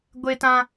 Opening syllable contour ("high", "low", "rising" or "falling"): high